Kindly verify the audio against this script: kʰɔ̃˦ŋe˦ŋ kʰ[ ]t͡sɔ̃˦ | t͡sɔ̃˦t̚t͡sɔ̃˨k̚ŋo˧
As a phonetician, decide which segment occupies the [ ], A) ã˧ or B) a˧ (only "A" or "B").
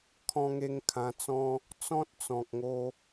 A